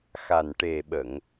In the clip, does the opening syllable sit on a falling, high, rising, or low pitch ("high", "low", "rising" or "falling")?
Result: low